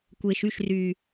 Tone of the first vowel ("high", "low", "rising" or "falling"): low